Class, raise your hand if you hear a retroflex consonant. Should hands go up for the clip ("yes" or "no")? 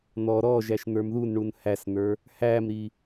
yes